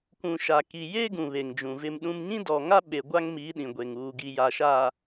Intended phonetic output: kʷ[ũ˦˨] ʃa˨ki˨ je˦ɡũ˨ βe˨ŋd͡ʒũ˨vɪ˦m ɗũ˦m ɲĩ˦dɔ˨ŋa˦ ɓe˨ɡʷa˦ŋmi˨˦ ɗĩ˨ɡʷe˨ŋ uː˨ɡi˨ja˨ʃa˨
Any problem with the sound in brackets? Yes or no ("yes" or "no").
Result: yes